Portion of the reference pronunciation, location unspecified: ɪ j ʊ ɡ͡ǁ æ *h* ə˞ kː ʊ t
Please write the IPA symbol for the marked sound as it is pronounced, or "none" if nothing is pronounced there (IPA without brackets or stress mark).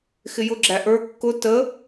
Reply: ʔ